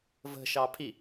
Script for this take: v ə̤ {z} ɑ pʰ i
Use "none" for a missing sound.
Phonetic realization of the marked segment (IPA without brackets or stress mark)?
ʃ